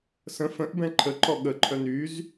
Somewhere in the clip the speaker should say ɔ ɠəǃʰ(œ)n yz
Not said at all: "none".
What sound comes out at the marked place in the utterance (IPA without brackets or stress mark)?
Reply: œ